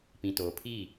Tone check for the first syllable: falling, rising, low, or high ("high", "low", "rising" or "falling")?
low